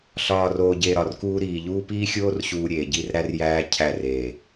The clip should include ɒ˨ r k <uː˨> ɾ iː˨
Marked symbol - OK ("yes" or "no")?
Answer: no